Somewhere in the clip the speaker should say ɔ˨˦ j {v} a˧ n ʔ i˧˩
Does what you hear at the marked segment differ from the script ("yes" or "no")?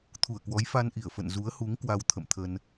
yes